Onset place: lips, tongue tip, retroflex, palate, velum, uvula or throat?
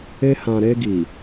throat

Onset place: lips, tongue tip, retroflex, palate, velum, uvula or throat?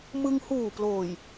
lips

